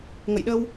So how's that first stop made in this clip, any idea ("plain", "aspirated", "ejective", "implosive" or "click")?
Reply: implosive